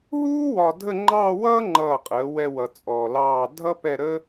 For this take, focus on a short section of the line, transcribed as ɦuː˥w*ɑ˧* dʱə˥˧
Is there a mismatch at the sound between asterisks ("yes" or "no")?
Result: yes